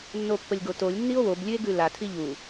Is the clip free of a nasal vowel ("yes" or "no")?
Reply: yes